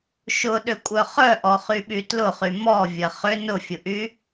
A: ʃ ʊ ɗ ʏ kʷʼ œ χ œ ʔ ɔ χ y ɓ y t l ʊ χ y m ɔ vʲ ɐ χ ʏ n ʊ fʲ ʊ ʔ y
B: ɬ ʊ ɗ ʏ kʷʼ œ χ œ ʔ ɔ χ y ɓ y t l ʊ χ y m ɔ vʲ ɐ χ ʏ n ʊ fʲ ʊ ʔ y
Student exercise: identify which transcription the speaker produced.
A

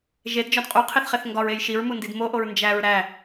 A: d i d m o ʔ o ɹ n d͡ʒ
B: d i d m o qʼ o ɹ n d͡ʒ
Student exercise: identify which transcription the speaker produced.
A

